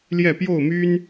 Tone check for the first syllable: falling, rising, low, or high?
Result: falling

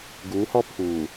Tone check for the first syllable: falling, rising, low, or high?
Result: rising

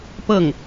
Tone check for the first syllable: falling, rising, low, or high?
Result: falling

